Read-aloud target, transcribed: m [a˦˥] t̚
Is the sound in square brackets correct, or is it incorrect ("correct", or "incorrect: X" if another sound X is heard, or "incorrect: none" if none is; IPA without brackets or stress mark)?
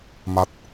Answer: correct